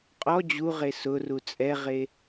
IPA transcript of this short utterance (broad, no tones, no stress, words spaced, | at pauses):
qʼɔ d͡ʑuʁe sʊru t͡sʼɛʁe